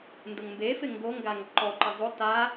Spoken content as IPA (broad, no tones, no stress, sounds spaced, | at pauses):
n d ʊ ŋ m b e f ɪ ŋ ɡ o ŋ ɡ a ŋ ǃ ɔ ǃ ɪ zˤ o t a